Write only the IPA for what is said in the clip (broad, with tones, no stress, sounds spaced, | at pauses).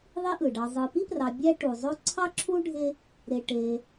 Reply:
ðˤ i˦ ʔ ɯ˩ ɖ ɑ˨ zˤ ɯ˨ p i˥ p r ɑ˨ bʲ æ˦ ʈ u˩ zˤ o˦ ǀʰ ɑ˥ ǁʰ u˥ ɖʱ e˦ | ɾ e˨ ʈ e˨